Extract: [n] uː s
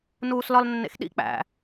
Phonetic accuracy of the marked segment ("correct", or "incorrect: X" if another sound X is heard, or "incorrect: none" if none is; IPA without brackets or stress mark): correct